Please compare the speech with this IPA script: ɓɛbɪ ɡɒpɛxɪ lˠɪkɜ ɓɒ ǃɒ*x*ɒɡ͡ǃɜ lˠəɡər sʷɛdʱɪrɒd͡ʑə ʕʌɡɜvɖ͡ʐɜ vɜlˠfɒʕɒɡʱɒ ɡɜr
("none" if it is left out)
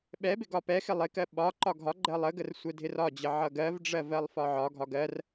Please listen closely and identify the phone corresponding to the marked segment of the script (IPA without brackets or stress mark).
ɡʱ